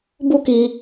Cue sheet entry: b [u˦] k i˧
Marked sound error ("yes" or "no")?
no